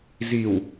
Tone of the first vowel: low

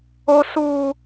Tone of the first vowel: high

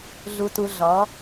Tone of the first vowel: low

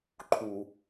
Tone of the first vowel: low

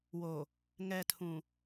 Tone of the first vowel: low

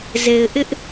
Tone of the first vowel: low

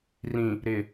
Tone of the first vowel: low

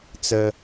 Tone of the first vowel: high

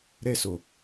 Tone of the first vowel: high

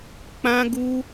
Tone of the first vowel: high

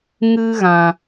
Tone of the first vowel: high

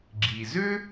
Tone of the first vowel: low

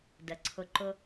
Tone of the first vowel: low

